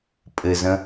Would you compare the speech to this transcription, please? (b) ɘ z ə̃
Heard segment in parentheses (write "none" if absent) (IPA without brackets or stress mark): pʼ